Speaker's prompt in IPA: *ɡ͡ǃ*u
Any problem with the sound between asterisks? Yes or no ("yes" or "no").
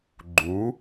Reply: no